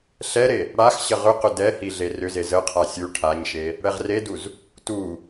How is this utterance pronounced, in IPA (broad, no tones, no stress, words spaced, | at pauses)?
ɬɛɾe | ɽax ɕəʁʏqʏ dɛhi ɮerʏze zəqʰa sʲu ʈʰaɲʃe | ɽɛʁreduz | tu